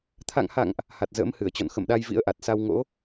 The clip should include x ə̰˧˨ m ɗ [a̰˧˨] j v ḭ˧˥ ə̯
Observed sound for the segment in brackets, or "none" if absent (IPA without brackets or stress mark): a˧